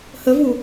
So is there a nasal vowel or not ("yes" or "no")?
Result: no